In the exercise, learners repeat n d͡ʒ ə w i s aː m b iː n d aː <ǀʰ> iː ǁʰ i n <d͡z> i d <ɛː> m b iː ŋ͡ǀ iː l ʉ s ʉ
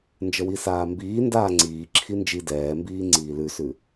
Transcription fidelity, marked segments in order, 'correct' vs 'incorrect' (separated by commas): incorrect, incorrect, correct